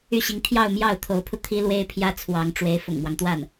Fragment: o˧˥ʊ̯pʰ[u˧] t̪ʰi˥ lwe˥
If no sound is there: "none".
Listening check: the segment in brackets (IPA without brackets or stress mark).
u˧